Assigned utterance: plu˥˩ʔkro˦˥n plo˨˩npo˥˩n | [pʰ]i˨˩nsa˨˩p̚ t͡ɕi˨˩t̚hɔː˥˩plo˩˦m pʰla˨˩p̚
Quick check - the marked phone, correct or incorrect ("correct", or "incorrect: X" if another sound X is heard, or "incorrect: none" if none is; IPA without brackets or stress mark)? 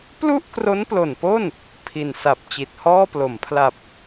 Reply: correct